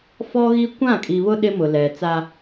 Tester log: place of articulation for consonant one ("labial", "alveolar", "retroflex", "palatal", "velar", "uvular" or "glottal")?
labial